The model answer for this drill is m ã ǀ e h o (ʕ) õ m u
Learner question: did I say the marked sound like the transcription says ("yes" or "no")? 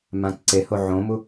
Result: yes